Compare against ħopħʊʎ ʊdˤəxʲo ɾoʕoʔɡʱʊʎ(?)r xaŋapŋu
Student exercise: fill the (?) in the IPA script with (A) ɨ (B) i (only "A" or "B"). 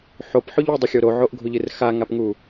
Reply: A